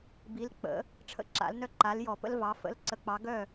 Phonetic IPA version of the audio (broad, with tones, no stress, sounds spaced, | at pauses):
b i˨˥ l k͡p ə̰˨˥ | ʈ͡ʂʰ ə̰˥˨ ǁ a̰˨˥ l n œ˥ ǃ a˨˥ l j ɔ˧˩˧ p ə̰˥ l v ɑ˨˥ f ə̰˧˥˧ l ǀ ə˧˩˧ k͡p ɑ˨˥ ɡ œ˥˨